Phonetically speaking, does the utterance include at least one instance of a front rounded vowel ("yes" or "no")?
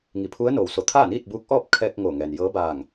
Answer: no